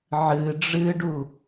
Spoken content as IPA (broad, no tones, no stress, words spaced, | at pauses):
ʕɨ ɖ͡ʐɨɖu